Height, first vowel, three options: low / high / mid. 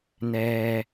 mid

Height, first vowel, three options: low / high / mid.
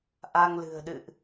low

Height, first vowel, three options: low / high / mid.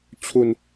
high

